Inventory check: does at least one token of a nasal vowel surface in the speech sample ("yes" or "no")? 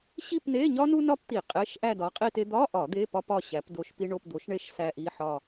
no